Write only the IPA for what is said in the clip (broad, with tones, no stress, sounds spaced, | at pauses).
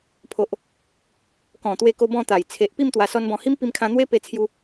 pʰ o˨ ʔ | k ɔ̃˨˩ t̪ w e˧ k o˧ b ɔ̃˥˧ t̪ a˨˩ j t͡sʰ e˨ ʔ p i˥˧ m t̪ w a˧ s ɔ˦ n b ɔ̃˧ h i˦ m p i˧ m kʰ ã˧ n̪ w e˦ p e˧ t͡sʰ j u˧